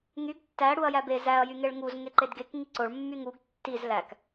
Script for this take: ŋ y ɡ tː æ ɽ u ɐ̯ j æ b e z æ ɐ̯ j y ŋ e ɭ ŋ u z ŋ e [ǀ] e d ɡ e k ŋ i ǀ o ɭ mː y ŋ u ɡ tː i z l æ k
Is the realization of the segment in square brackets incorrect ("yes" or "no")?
yes